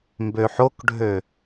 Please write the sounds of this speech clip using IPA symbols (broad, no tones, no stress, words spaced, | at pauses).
mbøħokɖʱø